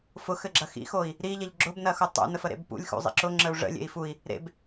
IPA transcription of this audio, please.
fʊxɘɡ͡ǁɐ xḭxoi̯ | ɾiʎɐʎ ɡ͡ǁʊbnɐxu tˤṵnəfəɾḛb pṵlʲxṵzˤḭ ǁʊŋ͡ǁəu̯ ʐə̰lʲḛi̯ fui̯ | ɾḛb

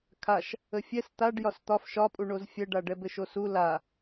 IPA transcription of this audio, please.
kʰaʃ | əfʲɛs t̪aɖ jɒst̪ɒf ʃɒpʼuɳoz fʲɛɖaɖɛ bɘʃosu la

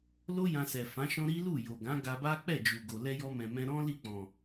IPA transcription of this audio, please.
lo˦ jã˧sɛ˨fã˨˦ʃɔ̃˦ ɾi˦lu˦˨ jo˨ɡã˨˦ ɡa˧ba˦ k͡pɛ˦˨d͡ʒu˨ɡo˨ lɛ˧jɔ˧mɛ̃˨mɛ̃˧ ɾɔ̃˦ li˦˨k͡pɔ̃˨

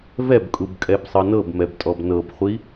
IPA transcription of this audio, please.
vɛbkʼubkʼɛbsˤɤ nɤbmɛbtʼɔb nɤbχʷi

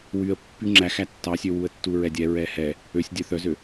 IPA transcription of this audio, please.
wyə̯ pːyŋ͡ǁæx ætːɑsʲø wuə̯tːuɹɛdʲɛ ɹɛhɛ | øsʲ dʲœθœzø

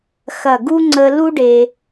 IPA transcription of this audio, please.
xɐ˧˩ɡu˥ŋ͡ǀə˧ lu˥ɖe˧

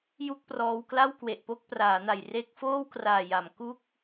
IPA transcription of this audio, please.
ju˥˩k̚prɔː˧wkla˥˩w kwe˨˩ʔpo˥˩k̚praː˩˦na˨˩j re˦˥k̚foː˥˩wkraː˨˩ja˩˦m ku˥˩k̚

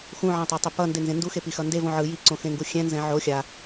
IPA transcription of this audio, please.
xũʕãtˤɛtˤi pʌndenzẽ nduxepixʌ ndevõ ʕɯ jiǀõxẽŋɡu xʲɛ̃nzɛ̃ ʕo xʲa

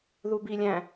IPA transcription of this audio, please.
ðubilʲæ̃

